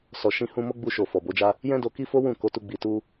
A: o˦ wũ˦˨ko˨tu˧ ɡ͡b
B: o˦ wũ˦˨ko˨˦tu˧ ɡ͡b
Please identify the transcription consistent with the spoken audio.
B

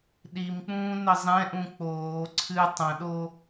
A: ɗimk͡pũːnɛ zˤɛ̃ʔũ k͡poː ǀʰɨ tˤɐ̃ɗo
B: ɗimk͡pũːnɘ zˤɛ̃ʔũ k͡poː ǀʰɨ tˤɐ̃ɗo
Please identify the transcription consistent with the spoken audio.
B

